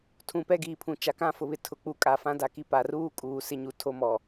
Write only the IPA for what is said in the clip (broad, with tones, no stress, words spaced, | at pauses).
tʰũ˨pɛ˦˨ɡiː˨pʰũ˨ t͡ʃa˨kã˦fʊ˨βɪ˨ tʰʊ˨ k͡pu˨kʼa˨ fã˦da˨ki˦ pa˨ruː˦kʼuː˨ sɪ˦ɲu˨tʰo˦mɔ˨